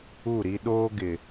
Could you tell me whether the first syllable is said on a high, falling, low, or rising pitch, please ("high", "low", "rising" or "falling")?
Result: falling